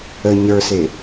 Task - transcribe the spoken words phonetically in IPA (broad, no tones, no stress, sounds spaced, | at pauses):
ə ɲ ə˞ s e